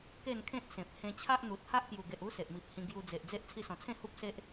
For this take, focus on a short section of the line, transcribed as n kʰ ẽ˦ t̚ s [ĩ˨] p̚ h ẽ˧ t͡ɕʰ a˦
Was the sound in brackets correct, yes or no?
no